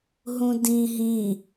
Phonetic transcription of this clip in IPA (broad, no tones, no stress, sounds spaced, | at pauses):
ɦ ũ d ĩ ɦ ĩ